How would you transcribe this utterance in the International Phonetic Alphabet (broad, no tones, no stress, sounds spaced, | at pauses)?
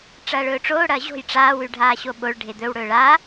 ʈ͡ʂ ɐː ɭ ɵː ʈ͡ʂ oː ɽ ɐː ʑ o̤ j ʈ͡ʂ aː w ʉ ɖʱ aː ɕ o ɓ o ɭ ɖʱ e d̪ ɵ w ɽ ɵː ɭ aː